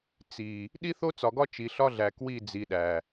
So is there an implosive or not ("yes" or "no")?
yes